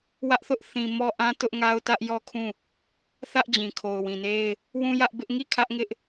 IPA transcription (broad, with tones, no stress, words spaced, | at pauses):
wä˦ʔθʊ˦ʔ θĩ˨mɔ˦ʔã˦ tʊ˦ʔŋa˦ʊ̯tä˦ʔ jɔ˦˨kʰũ˦˨ | θä˦ʔ d͡ʑĩ˨kʰo˨ʊ̯wĩ˨ne˦ɪ̯ | wũ˦jä˦ʔbɪ˦ʔ ŋi˦˨ kʰä˦ʔŋɪ˦ʔ